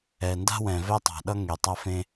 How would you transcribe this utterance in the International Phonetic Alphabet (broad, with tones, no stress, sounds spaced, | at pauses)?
ɛ˨ n d a̤˦ w ɛ̃˨ v ɛ˦ tˤ a̤˨ ɗ ʌ˦ ŋ e˨ tˤ a˦ f ẽ˦